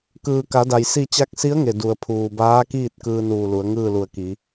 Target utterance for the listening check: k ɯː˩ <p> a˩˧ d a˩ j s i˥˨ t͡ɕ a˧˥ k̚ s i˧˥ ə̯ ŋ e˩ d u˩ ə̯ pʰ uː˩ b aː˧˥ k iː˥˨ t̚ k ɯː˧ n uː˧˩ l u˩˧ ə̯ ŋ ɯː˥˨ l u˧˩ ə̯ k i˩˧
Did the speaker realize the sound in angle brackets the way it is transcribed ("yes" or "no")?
no